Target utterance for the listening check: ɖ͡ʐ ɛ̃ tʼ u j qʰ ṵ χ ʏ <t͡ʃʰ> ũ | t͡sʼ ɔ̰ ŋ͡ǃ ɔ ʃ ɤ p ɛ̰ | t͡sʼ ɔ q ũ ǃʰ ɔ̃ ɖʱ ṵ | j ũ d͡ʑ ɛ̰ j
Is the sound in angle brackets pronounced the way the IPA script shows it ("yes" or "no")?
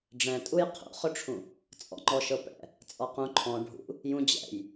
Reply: no